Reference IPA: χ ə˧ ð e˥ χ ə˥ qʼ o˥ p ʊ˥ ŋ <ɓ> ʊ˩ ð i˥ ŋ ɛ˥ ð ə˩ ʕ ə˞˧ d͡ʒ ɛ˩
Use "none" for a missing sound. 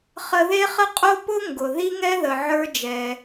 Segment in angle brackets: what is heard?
ɡ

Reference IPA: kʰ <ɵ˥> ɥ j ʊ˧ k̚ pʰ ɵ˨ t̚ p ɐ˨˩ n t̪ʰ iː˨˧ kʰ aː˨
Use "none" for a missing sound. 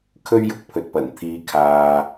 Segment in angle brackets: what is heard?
ɵ˥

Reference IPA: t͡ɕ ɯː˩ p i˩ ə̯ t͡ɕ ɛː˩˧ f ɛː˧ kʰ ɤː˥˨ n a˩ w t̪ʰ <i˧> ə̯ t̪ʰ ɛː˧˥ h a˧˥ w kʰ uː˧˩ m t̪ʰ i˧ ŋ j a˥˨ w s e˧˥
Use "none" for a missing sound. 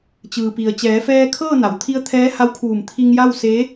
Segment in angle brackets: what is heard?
i˧˥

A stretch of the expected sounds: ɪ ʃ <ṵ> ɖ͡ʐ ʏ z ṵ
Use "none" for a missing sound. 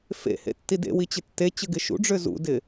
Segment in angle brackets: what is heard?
ṵ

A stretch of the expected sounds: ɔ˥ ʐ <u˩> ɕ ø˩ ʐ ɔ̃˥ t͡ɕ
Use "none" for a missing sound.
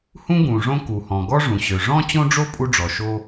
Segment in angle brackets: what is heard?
ũ˩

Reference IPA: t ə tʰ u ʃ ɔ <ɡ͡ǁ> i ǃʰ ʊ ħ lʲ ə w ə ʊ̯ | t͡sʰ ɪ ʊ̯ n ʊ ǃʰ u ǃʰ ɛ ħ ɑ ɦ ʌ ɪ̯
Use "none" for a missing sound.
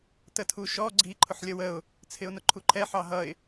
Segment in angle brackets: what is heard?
ɡ͡ǀ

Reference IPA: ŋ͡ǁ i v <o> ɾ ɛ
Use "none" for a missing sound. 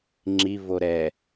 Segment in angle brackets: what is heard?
o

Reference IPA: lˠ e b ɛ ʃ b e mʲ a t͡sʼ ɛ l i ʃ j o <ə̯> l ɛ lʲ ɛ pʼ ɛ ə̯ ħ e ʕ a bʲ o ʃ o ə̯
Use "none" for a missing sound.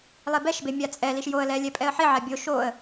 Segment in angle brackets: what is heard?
ə̯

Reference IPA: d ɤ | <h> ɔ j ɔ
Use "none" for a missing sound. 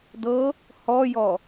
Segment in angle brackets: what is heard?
h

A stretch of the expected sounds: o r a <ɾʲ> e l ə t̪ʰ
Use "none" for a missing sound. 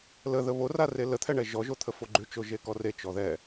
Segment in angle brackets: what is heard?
r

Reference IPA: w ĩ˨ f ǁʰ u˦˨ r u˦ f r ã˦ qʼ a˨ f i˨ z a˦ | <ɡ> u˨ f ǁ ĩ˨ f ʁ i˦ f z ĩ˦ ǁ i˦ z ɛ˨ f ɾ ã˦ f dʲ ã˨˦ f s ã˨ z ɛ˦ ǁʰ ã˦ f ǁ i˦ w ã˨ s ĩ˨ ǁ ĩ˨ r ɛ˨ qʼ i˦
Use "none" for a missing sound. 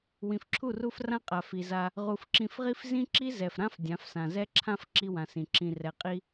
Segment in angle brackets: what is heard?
ʁ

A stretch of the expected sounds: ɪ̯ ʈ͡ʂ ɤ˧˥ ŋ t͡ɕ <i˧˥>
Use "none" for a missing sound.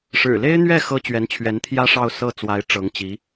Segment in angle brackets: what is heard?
i˧˥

